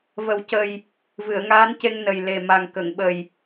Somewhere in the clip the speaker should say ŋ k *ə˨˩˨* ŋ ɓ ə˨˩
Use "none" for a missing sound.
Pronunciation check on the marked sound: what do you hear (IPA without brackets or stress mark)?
ə˨˩˨